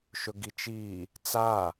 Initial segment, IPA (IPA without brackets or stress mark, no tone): ʃ